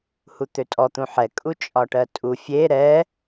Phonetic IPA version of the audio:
h u t̪ ø tʼ ɔ t̪ ũ ħ ɛ kʼ u t͡ʃʼ ɒ ʈ ɜ tʼ u fʲ e ɾ ɛ

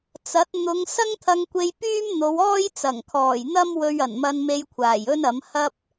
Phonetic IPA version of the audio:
t͡s ɐ˨˥ t̚ n̪ ʊ˨˧ ŋ s ɐ˥ ŋ t̪ʰ ɐ˧ ŋ kʷ e˧ j p yː˥ m n̪ o˨˧ w ɔː˥ j t͡s ɐ˨˩ ŋ kʰ ɔː˨˩ j n̪ ɐ˥ m w ɵ˧ ɥ ɐ˨˩ n m ɐ˧ n m e˧ j kʷʰ aː˨˩ j ɵ˥ n ɐ˨˥ m h ɐ˥ p̚

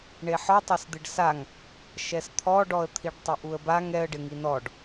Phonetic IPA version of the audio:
ɳ e ħ ɔ tˤ a s d̪ ɪ ɖ s a ŋ | ʃ ɛ s t̪ʰ ɔ ɖ ɔ ə̯ t̪ʰ i ɖ tˤ ʊ ʔ u ə̯ b a ŋ ɛ ə̯ ɖ ɪ ŋ i n ɔ ɖ

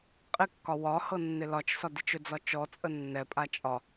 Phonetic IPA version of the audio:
qʼ ɪ kː ɒ w ɒ h ɤ nː ɪ l ɒ t͡ʃ s ɒ d i t͡ʃ ɵ d͡z ɒ t͡ʃ ɔ t͡sʼ ə nː ɛ pʼ a t͡ʃʼ ɒ

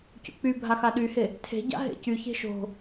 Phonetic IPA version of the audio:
c o̰ k͡p y bʱ a x a ɗ y h e | tʰ e̤ ɟ a̰ ɦ ḛ c y ç e̤ ʃ o̤

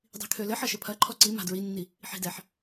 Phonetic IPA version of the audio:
dˤ i̤ kʰ ø l ɘ ħ ɐ ʃ ɘ pʰ ɐ ǃʰ ɔ ǀ i m a̤ d ɹ i nː i | ħ i̤ d ɛ ħ

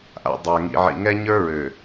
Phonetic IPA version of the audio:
ʔ a̰˨ dˤ ə˞˨ ŋ ḭ˨ ʕ ḭ˨ ŋ ɛ˦ ɲ ə˞˦ ɹ ø˨

